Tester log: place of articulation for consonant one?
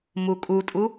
labial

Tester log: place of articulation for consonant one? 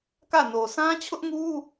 velar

